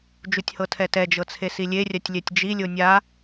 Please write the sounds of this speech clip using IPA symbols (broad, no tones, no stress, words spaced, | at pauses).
d͡ʒutʲhɤtʰɛtɛ d͡ʒɤt͡sʰesilʲe rʲatʲlʲɛtʲd͡ʒi lʲonʲa